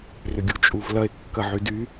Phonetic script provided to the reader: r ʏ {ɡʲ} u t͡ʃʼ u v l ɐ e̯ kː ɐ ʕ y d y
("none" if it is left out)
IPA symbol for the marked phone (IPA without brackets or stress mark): ɡʲ